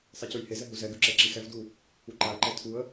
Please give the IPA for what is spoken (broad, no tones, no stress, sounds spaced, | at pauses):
sˤ i c ʉ j h e z ɛ ɦ u z ɛ ɡ ʉ ǁ ɛ ǁ i x ɛ v d u | u ǃ a ə̯ ǃ ɛ tʰ u ə̯